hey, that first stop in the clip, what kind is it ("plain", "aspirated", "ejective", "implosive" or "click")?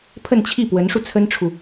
aspirated